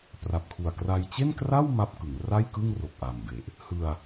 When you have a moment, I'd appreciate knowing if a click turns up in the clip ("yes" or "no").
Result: no